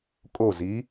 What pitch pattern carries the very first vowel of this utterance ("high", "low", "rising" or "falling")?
falling